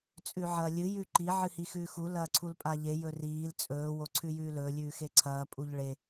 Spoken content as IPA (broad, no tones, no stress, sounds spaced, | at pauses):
t͡sʼ ʉ ʕ ɐː lʲ ɨ j ʉ ǃ i ʕ ɨ h i x ʉː x u l ɐː ǀʰ u l pʼ a ʎ e j ɵ r iː l t͡sʼ ɵː w o ǀʰ ʉ j ʉː l ɵː lʲ ʉː x e ǀʰ ɐː pʼ u ʎ ɭ e